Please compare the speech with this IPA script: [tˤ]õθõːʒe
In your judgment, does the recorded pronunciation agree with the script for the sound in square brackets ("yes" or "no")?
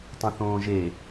yes